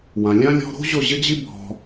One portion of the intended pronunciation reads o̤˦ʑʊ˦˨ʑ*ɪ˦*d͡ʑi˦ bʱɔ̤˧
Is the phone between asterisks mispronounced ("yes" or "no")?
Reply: no